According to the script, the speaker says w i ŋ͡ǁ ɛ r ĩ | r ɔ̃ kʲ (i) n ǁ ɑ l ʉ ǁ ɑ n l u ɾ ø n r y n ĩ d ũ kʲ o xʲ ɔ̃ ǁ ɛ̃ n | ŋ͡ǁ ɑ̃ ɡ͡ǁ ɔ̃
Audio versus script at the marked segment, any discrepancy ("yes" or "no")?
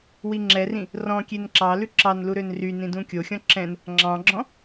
yes